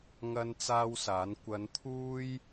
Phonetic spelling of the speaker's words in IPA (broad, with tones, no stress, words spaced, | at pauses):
ŋɐ˥nt͡saː˥wsaː˨˥n kʷɐ˨˧nt̪ʰuː˥j